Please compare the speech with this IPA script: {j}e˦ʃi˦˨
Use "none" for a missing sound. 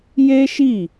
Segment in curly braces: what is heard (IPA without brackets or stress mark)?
j